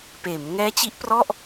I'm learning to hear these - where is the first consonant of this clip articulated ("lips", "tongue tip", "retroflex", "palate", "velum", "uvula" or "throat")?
lips